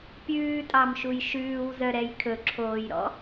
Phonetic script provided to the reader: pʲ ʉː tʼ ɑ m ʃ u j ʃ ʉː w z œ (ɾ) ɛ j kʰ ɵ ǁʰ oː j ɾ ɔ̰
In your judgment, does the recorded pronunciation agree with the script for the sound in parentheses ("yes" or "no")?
yes